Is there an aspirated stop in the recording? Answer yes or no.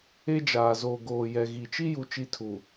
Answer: yes